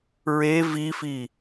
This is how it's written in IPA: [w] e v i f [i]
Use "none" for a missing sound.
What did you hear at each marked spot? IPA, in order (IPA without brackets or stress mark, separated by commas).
ɹ, i